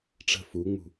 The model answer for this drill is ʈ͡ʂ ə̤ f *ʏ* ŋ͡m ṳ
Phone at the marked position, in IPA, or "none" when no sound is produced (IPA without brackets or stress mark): u